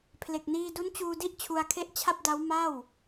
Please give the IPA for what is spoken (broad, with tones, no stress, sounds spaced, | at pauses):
pʰ l e˨˩ k̚ n iː˧ d u˦˥ n t͡ɕ uː˧ d i˥˩ ʔ t͡ɕʰ u˧ a̯ kʰ e˥˩ ʔ t͡ɕʰ a˥˩ p̚ d a˦˥ w m a˥˩ w